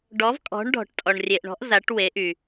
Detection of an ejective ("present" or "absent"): present